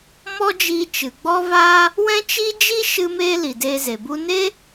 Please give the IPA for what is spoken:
m ɔ˦ d͡ʒ iː˧ t͡ʃ ɨ˨ ɡ͡b ɔ˦ v aː˦ | w ɛ̃˦ t͡ʃ i˦ d͡ʒ i˦ ʃ ɨ˦ m eː˦ l i˨ d eː˧ z e˨ b u˦ n e˦

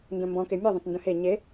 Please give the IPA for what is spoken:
n d ə̃ m b ɔ̃ k e mʲ ɯ ðˤ ə̃ t n d ə̃ h e ɲ e

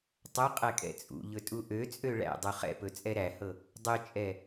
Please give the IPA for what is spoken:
tˤ ɵ qʼ ɛ kʼ ɛ̰ t͡sʼ ṵ ʎ ɵ tʼ u ʔ ø t͡sʼ ø ɭ æ̰ dˤ u χ ɛ̰ p ɵ t͡sʼ ɛ ɾ æ h ɤ | dˤ ɵ t͡ʃʼ ɛ

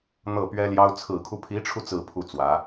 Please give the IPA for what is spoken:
n̪ ɤ˥˩ p ɥ ɛ˥ l j ɑ˥ ʊ̯ t͡sʰ ɹ̩˨˩ kʰ u˦ pʰ i˧˥ ʈ͡ʂʰ u˧ t͡s ɹ̩˥˧ pʰ u˥˩ t͡s w ä˧˥

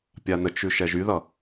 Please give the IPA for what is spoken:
pʲ a n ə t͡ʃ ʉ ʃ ɛ ʒ y ð ʌ

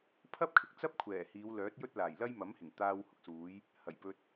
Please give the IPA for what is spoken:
pʰ ɐ˥ p̚ kʰ ɪ˨ k̚ t͡s ɐ˥ p̚ kʷʰ ɛː˨˩ h iː˨˧ w l œː˨˥ t̚ j ɵ˥ t̚ l aː˨˩ j l ɐ˥ j m ɐ˨˥ m h ɪ˨˩ ŋ t̪ aː˧ w h ʊ˥ k̚ s uː˨˥ j | h ɐ˨˩ j p ɵ˧ t̚

